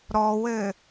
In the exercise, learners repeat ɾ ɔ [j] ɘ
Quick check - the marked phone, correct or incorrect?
incorrect